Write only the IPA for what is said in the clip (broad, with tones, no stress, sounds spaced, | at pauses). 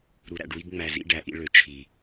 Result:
ɾ u˨ ɾ æ̰˨ ɖ w i˦ ɡ ŋ͡m æ˨ z ḭ˦ ɖ æ˨ ʔ ḭ˦ ɭ ø˨ t͡ʃʰ i˨